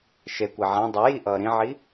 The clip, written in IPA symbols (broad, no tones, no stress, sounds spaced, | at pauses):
ʃ e kʷ ɛ ʕ ã dˤ ʌ j i ʔ ʌː ɾ ĩ ʕ i